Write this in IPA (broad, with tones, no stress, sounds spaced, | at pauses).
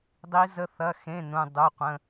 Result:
dˤ i˦˥ z ə˦˥ θ ɐ˧˥˧ x ẽ˧˥˧ n ũ˧˥˧ dˤ u˧˥˧ qʷ ə̃˧˥˧